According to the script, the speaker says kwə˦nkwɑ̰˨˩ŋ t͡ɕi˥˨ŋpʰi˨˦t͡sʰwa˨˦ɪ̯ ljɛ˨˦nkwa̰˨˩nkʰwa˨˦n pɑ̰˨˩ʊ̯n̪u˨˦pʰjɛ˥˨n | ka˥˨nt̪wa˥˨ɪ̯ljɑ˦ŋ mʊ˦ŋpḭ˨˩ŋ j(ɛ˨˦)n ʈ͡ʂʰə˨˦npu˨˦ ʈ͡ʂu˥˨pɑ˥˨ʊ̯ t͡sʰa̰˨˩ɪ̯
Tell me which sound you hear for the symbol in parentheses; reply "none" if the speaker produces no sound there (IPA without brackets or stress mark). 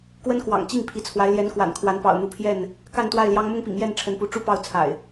ɛ˥˨